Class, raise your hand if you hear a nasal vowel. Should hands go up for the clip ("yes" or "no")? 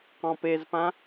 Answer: yes